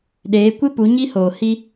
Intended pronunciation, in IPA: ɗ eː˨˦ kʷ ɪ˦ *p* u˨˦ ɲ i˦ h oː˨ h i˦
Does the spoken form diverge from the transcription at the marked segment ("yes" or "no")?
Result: no